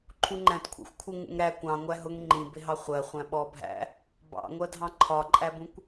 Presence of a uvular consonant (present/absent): present